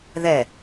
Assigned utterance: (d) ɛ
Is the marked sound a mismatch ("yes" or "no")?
yes